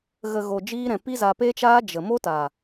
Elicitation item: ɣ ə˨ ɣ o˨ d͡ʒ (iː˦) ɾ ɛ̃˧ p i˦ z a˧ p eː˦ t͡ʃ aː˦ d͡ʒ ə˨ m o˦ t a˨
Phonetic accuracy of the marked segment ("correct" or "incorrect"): correct